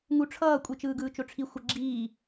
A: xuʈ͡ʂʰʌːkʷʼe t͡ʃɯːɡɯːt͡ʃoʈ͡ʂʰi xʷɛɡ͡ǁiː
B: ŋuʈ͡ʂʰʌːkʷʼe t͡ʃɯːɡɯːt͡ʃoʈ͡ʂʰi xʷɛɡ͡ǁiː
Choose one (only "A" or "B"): B